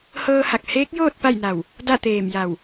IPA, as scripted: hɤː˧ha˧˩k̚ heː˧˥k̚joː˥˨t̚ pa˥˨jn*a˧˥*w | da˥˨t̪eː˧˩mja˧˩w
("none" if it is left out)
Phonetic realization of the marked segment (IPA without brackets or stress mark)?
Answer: a˧˩